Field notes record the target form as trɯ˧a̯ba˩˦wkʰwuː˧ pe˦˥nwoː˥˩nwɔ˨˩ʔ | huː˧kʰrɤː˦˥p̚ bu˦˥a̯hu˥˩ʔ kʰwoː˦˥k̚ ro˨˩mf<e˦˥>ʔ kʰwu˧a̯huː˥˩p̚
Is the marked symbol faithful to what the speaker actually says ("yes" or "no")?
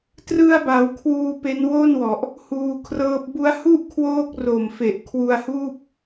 no